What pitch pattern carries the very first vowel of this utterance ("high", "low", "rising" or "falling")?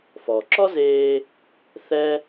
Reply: low